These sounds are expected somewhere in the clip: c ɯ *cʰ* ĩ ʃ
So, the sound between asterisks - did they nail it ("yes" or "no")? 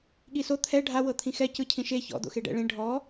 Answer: yes